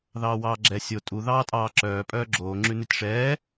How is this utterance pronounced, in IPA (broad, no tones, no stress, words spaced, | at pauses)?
ðɑːwɑːɡ͡ǁɛ sʲo tʼu ðɑːtʼɑːǁœː pʼœːɡ͡ǁoː ŋ͡ǁʉnʉtʲʂɛː